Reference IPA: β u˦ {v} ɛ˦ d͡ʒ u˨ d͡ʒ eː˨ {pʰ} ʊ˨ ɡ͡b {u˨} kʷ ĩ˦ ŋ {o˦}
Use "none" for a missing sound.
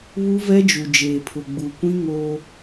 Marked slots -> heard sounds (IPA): v, pʰ, u˨, o˦

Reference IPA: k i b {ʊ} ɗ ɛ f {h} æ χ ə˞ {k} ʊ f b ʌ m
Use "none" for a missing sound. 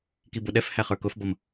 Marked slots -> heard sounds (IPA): ʊ, h, k

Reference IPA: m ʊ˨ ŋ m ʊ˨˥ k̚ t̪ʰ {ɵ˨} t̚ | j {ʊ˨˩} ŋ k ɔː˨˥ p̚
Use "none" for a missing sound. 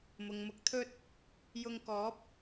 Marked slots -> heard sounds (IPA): ɵ˥, ʊ˧

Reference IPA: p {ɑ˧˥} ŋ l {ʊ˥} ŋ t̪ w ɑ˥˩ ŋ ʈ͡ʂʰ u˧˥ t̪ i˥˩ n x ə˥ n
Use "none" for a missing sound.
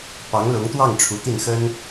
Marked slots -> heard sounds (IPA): ɑ˧˥, ʊ˧˥

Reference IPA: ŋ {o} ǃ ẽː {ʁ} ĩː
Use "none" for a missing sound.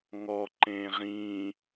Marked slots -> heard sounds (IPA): ɔ, ʁ

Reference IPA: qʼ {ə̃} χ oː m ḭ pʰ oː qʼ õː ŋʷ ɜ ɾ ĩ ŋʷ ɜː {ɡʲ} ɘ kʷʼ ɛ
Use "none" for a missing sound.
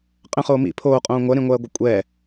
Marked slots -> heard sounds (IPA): ə̃, ɡʷ

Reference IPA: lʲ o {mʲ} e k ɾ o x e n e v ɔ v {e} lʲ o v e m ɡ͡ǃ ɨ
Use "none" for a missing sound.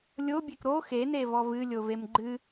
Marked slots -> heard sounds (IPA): bʲ, ɨ

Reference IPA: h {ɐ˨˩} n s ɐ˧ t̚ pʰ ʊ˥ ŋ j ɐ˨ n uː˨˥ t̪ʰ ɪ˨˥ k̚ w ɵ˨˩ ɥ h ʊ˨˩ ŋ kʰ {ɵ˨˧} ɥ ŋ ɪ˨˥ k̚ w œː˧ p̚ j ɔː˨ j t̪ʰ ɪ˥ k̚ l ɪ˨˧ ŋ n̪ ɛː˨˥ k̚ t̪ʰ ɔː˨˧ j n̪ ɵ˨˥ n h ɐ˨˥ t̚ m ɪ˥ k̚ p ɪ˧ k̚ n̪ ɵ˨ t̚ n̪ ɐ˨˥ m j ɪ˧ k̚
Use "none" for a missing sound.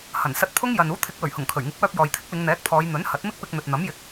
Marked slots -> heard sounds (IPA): ɐ˨˩, ɵ˨˩

